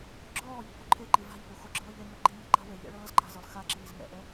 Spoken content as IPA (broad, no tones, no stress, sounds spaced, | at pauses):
ɡ͡ǁ ɔː ʎ i̤ p u ǃʰ e ǃ i v a̤ ʎ p u x o ɡ͡ǁ ɤː ʎ e ŋ ɤ ɡ͡ǃ i m e̤ ǃ a̤ w e ʎ ɛ̰ ɭ ɤː z ǃ a̤ z ɯ lˠ x a ǁ iː z ŋ ɛ̰ ʔ ɛ